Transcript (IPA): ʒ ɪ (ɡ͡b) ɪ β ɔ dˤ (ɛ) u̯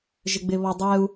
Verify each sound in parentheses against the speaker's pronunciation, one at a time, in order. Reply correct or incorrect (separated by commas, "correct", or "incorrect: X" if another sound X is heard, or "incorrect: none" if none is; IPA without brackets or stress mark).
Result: correct, correct